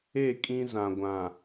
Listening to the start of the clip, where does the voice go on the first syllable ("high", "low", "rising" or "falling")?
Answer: falling